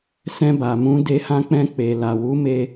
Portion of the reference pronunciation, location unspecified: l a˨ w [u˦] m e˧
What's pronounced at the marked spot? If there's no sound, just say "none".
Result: u˨˦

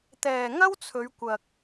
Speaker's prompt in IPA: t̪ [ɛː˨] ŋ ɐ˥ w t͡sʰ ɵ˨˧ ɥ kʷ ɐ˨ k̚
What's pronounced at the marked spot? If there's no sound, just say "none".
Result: ɛː˨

